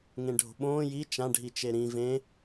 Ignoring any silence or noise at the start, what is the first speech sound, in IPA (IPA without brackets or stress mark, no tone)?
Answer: ŋ